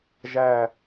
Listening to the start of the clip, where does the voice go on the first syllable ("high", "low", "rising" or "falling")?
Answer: falling